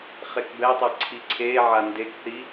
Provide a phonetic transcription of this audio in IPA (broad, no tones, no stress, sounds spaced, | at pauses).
χ e k b ɛ tˤ ɛ ǀʰ i ǀʰ e ʕ a n d e k θ i